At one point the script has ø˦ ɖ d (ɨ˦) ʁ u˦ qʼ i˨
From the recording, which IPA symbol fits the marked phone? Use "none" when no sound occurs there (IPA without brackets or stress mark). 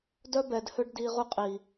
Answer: i˦